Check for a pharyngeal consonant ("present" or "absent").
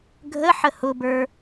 present